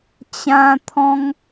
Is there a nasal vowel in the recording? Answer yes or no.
yes